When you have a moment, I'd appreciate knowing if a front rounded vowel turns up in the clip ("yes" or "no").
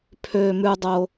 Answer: yes